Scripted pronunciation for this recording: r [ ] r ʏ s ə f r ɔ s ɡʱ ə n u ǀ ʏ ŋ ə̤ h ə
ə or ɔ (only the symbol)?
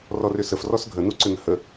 ɔ